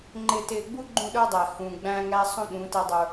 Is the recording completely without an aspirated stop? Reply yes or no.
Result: yes